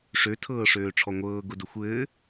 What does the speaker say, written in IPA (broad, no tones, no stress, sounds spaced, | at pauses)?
ʂ ø tʰ ɤː ʂ øː ʈ͡ʂʰ ɔ ŋʷ ɤː ɡ ʊ d ʊ xʷ ɘː